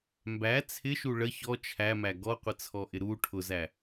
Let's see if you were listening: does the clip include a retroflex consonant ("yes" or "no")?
yes